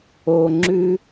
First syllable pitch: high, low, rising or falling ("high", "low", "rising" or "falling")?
low